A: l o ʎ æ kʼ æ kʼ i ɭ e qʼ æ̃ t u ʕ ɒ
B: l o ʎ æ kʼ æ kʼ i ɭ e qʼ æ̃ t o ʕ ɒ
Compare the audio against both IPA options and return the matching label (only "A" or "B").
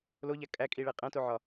B